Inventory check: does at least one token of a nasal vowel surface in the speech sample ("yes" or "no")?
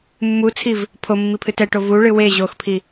no